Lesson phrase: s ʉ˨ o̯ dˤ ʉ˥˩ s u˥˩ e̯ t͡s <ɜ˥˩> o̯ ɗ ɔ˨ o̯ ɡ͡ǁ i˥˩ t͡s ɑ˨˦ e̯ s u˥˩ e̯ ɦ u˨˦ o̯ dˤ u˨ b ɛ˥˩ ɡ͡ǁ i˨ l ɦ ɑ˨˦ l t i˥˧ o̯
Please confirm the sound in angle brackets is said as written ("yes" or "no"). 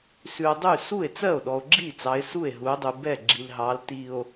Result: yes